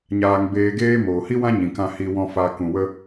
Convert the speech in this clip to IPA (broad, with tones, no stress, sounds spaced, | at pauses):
ɲ aː˨ ŋ b eː˧ ɡ eː˦ m oː˨ h i˦ w ã˦ ɲ ĩ˨ k ã˧ h i˧ w ɔ̃˧ f a˨ k ũ˨ w ə˧